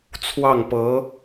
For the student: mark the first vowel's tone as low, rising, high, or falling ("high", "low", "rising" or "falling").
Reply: falling